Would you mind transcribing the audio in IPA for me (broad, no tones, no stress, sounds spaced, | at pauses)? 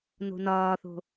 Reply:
n o̤ n ɒː θ o̤